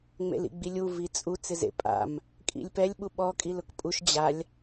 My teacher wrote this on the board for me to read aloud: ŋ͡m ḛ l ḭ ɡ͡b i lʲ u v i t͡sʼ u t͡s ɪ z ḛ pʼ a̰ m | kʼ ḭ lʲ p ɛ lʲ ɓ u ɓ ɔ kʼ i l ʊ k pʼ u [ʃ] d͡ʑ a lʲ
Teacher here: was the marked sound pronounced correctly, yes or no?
yes